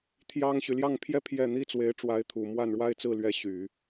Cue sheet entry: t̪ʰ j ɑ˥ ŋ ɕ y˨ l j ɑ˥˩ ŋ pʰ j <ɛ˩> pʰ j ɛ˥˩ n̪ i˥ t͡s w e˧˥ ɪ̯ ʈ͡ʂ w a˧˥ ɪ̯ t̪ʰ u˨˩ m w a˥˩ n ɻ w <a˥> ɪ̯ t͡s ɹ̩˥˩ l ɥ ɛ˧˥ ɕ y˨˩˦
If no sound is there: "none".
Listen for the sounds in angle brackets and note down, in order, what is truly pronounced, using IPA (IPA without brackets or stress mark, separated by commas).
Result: ɛ˥, a˥